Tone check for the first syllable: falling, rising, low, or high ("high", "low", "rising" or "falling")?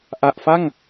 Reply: low